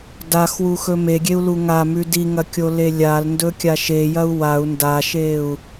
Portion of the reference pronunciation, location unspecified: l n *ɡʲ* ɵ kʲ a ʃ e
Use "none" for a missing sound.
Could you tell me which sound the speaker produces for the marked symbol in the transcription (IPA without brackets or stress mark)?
d